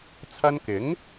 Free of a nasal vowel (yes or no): yes